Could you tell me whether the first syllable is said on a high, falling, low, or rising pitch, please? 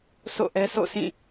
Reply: falling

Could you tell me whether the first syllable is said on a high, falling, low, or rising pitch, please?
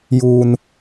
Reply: high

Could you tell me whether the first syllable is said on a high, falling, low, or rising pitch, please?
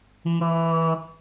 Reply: low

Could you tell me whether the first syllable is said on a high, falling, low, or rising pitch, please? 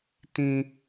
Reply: high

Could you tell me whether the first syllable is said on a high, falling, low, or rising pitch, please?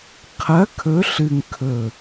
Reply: rising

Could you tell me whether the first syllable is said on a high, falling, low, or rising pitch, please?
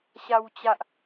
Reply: low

